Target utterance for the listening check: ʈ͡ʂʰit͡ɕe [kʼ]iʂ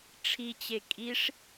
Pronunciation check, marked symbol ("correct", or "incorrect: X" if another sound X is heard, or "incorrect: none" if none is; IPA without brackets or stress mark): correct